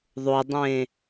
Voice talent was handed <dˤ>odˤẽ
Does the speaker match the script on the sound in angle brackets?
no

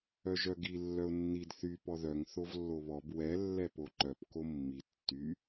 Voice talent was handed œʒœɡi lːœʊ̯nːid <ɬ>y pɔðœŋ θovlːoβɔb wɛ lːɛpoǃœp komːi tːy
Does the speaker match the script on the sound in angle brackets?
no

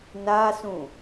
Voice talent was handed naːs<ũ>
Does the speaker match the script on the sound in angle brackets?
yes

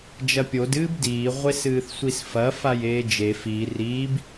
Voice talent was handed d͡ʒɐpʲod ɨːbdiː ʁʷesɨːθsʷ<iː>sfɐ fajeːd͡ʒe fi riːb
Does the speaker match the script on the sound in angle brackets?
no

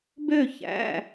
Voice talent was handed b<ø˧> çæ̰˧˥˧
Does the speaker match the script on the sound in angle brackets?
no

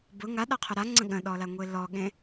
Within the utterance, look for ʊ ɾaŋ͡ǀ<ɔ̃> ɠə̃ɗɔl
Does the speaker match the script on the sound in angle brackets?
no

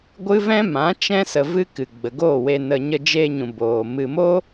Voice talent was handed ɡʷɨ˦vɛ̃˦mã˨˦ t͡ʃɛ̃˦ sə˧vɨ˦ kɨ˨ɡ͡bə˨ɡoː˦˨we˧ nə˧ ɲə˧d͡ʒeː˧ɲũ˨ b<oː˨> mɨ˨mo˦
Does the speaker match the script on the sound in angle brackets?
yes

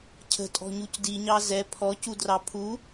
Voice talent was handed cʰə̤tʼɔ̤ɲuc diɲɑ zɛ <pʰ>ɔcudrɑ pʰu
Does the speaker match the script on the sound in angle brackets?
yes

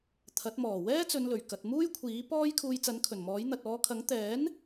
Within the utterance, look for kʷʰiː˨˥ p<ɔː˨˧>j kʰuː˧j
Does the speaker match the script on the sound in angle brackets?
no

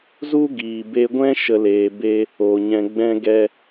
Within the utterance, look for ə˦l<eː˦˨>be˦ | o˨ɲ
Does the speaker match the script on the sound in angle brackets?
no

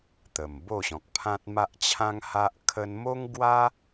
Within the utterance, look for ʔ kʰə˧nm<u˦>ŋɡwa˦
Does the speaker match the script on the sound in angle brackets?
no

